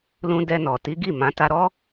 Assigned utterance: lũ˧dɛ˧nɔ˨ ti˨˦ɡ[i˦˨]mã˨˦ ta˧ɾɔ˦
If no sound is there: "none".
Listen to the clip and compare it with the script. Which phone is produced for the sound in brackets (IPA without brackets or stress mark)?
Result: i˦˨